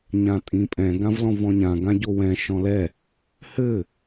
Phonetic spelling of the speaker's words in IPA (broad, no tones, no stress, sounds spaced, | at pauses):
ɲ ã tʼ ĩ pʼ ɛ̃ ɡ ã v l ɔ̃ v ɔ̃ ɲ ã ɡ ã ɟ o w ɛ̃ ʃ ɔ̃ l ɛ | h ɘ